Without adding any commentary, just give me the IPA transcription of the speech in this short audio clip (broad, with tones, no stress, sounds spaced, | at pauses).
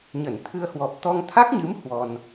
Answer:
ɲ ə˧˩ n t̪ʰ ɨ˧ ə̯ h w ɔ˨˩ p̚ t̪ ɔ˧ ŋ t̪ʰ a˦˥ k̚ ɲ ɨ˨˦ m h w ɔ˧ n